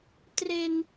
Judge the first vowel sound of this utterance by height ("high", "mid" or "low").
mid